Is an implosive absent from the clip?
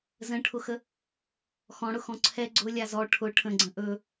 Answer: yes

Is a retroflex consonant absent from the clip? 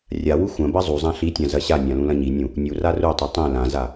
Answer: yes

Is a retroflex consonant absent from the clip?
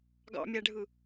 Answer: no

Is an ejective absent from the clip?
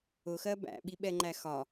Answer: yes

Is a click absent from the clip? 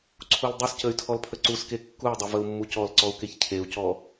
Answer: no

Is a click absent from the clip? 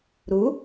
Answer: yes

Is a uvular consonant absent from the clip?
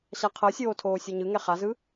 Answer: no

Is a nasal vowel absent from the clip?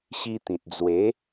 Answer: no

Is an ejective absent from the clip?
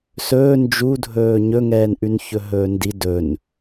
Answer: yes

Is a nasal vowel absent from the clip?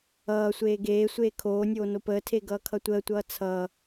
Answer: yes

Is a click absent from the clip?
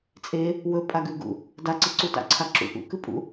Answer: no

